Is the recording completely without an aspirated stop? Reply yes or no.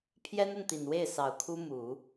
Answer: no